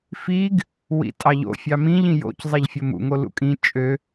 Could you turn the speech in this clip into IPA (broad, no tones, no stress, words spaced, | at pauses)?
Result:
fiɡ | wḭtʼɑʎo̰ fʲɑmĩʎ ĩjo̰c zˤeʎfʲomṵ ŋolṵkʼĩ t͡ʃʼø